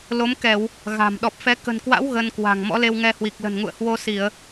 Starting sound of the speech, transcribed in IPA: l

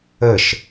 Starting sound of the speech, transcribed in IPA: ə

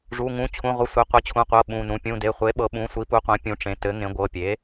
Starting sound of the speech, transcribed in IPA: ʐ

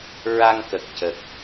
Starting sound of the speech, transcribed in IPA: ɹ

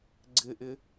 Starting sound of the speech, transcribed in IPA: ɡ͡ǀ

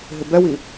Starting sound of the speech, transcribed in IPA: ɦ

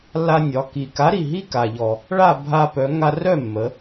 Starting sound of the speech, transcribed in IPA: lː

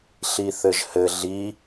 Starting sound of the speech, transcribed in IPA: ɬ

